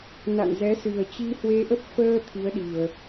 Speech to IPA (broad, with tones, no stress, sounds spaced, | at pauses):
n a̰˧˨ n z ɛ˨˦ s ɨ˨˩ ə̯ t͡ɕ i˧ h w e˧ ʔ ə˦˥ p̚ f əː˧ t̪ʰ i˨˦ ə̯ ɗ i˨˩ ə̯